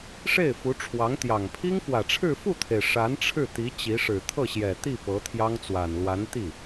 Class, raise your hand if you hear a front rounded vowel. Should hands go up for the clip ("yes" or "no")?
no